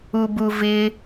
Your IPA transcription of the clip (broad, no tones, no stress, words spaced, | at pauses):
ubuvɪ